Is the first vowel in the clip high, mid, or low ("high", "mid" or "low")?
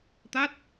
low